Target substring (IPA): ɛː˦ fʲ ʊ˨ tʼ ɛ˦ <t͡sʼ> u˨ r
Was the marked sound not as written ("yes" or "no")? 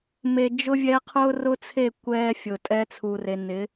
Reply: yes